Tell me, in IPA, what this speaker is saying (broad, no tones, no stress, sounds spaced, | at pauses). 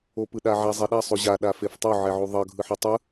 o p ɯ ɗ a ʕ a zˤ e ɗ a sˤ o ʑ a ɗ a f e f tˤ o ʕ ɛ ʕ u ðˤ ʌ ɡʱ ɯ ħ ʌ tˤ ɯ